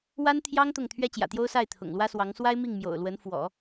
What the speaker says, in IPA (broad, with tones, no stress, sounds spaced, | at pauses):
w a˥ n t̪ʰ j ɑ˥ ŋ t̪ ʊ˥˩ ŋ t̪ʰ ɥ ɛ˥ t͡ɕ j ä̰˨˩ t̪ j o˥ ʊ̯ s a˥˩ ɪ̯ t̪ʰ ʊ̰˨˩ ŋ l w ä˥ s w ɑ˧˥ ŋ s w a˥ ɪ̯ m i˥˩ ŋ m j o̰˨˩ ʊ̯ l w ə˧˥ n f w ɔ̰˨˩˦